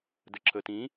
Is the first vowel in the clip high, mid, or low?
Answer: mid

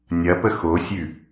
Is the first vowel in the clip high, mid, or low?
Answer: low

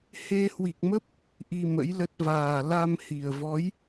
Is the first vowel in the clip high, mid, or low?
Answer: mid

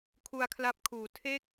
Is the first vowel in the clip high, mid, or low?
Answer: high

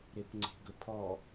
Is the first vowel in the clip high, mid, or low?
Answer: mid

